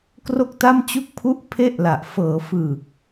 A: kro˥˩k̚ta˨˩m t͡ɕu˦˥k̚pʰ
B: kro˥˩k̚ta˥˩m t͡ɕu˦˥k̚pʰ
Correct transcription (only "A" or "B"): B